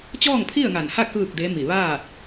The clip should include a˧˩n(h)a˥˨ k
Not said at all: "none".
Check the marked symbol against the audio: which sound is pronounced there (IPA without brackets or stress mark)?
h